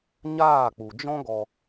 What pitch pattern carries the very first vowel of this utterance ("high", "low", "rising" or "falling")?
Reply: falling